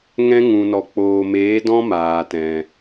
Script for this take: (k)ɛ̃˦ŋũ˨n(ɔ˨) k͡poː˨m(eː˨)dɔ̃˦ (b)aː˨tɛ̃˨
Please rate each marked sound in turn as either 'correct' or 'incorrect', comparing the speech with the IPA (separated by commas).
incorrect, correct, incorrect, incorrect